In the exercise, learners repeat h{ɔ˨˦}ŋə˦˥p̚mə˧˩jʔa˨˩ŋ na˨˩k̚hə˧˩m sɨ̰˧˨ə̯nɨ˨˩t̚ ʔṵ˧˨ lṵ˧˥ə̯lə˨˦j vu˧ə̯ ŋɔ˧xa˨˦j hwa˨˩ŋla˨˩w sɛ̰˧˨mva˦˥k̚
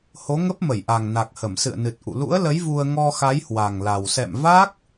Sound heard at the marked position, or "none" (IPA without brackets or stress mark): o˨˦